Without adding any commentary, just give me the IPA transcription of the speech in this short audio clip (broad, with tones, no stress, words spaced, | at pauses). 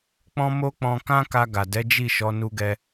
k͡pɔ̃˦mo˦ k͡pɔ̃˧kã˦ ka˧ɡa˨dɛ˨˦ d͡ʒi˦˨ʃɔ˨˦ nu˧ɡɛ˧